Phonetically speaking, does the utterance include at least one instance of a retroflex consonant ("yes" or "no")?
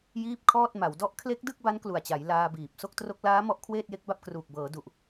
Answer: no